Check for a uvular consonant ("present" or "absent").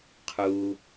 present